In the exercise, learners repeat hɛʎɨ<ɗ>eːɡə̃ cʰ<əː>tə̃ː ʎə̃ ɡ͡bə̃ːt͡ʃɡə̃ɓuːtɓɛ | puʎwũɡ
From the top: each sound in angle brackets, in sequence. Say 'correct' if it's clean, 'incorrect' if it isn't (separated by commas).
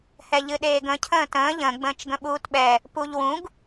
correct, incorrect